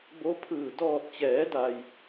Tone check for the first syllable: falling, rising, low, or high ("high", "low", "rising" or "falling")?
rising